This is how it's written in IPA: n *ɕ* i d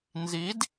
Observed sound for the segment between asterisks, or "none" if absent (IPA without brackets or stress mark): z